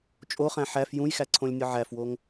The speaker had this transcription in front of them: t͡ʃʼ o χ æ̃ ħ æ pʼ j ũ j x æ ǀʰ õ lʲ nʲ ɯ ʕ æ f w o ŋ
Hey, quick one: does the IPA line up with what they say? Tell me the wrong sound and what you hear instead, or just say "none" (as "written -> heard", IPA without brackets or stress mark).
pʼ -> f